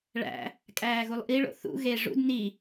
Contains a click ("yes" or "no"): no